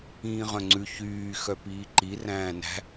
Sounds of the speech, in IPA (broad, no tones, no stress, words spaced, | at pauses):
ĩːʁœ̃ŋ͡ǀʉ çyː xœpiːǃi ræ̃ːnæ̤